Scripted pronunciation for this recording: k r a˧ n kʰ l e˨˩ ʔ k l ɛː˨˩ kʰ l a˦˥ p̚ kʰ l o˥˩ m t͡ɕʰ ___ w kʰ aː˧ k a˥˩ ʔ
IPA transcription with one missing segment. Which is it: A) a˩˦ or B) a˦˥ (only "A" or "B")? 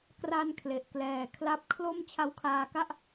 B